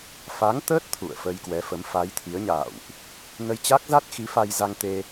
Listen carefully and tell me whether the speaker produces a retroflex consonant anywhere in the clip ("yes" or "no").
no